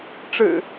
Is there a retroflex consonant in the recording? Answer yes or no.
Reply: yes